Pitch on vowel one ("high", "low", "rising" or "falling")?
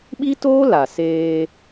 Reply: high